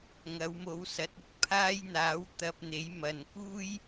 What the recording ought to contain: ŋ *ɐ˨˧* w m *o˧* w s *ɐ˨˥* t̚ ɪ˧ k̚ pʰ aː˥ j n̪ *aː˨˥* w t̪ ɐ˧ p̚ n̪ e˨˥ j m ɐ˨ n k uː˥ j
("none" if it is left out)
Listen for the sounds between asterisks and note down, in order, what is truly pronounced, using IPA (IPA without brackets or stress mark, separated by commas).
ɐ˨˧, o˨˧, ɐ˨˥, aː˨˥